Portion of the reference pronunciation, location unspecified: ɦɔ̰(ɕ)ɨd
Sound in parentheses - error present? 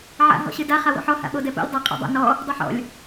no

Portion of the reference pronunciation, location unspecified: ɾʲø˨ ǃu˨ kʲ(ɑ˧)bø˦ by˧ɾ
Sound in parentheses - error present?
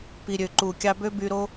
no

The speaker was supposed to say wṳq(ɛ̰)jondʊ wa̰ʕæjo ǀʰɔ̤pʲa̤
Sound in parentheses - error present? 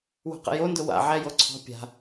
yes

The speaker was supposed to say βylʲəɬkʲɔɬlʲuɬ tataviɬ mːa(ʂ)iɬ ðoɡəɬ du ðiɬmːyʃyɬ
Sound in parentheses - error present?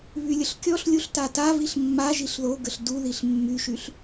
yes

